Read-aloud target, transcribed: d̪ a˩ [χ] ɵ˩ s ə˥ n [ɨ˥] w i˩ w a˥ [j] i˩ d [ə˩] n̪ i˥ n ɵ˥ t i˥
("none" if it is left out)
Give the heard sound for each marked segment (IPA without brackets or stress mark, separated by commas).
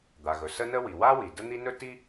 ɣ, ə˥, w, ə˥